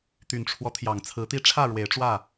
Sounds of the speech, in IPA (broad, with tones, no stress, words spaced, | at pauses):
t̪y˨˩nʈ͡ʂʰwɔ˦t̪ʰjɑ˨˩ŋ t͡sʰɹ̩˨˦t̪i˦ ʈ͡ʂʰä˥˨ ɻwe˨˦ɪ̯ʈ͡ʂwä˥˨